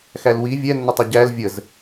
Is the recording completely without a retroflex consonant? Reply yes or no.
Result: yes